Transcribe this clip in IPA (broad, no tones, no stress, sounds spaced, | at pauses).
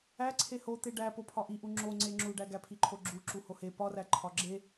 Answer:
æ ǀʰ e h o t̪ e ɖ æ p o pʰ ɒ ʔ i ʔ u ŋ͡ǁ o ŋ͡ǀ e ŋ͡ǁ u ɖ æ ɡ æ pʰ i ǃʰ o ɡ͡ǁ u ǁ u h o h e p ɒ r æ ǃʰ ɒ ɡ͡ǁ e